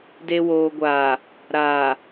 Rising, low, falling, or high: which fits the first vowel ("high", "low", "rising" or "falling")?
low